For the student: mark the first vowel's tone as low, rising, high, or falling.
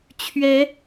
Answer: rising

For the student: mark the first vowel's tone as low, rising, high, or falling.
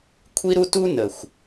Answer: high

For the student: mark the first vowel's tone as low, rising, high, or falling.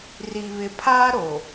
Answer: low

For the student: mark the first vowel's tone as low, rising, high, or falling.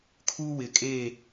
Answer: high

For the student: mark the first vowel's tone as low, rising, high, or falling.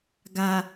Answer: low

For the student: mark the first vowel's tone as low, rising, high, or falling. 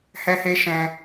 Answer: high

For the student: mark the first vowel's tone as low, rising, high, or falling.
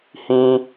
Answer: high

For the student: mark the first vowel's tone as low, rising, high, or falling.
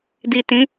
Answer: low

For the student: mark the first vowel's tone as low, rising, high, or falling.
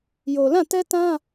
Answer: low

